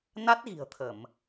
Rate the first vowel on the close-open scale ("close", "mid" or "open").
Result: open